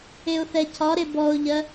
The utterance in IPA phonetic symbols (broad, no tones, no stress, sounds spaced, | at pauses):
e ʊ̯ θ ɛ cʰ ɒ ɾ e b ɔ ʊ̯ ʎ ɜ